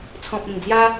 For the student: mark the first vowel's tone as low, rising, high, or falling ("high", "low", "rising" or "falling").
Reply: low